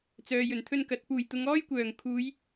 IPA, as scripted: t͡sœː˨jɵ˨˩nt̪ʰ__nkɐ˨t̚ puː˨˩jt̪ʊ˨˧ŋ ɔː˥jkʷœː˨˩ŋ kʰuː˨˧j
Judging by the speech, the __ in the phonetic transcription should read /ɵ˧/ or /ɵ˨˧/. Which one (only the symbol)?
ɵ˧